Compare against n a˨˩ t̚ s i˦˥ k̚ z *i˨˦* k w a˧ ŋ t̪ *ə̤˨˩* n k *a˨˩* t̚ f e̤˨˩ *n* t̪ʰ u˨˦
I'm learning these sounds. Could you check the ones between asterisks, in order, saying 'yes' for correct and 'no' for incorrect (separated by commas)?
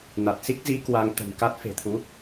yes, yes, no, no